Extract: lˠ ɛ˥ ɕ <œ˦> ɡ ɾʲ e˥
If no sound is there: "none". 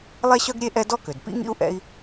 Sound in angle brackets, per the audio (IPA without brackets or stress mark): œ˥